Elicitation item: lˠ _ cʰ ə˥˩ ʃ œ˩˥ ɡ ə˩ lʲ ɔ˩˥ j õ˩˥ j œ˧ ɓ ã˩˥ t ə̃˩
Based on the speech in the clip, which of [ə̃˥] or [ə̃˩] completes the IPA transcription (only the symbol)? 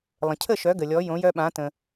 ə̃˩